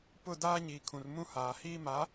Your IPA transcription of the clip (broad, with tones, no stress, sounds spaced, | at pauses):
p ʊ˦˨ d aː˦ ɲ iː˨ kʰ ũ˨ r m ũ˦ h aː˨ h iː˦ m a˨˦